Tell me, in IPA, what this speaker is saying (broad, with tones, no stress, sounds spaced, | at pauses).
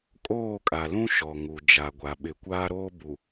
kʼ oː˦˨ kʼ a˨ l ũ˦ ʃ ɔ˨ ŋ u˨ d͡ʒ a˨ ɡʷ a˨ ɓ ɪ˨ kʷ aː˦ ɾ oː˦ b u˨